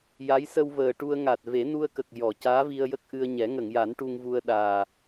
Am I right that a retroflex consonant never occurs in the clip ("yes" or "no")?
no